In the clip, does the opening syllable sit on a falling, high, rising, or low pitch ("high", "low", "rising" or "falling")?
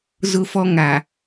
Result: high